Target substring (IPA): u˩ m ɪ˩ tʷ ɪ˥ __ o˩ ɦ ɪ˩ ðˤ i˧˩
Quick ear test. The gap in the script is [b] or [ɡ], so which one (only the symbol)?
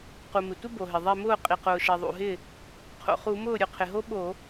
b